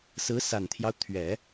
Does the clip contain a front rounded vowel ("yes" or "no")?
no